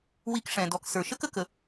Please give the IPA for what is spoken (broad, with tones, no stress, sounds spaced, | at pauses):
w i˧ k ʂ ɛ̃˨ d ɔ˨ k s ə˞˨ ʃ ə˦ k ə˦ k ə˧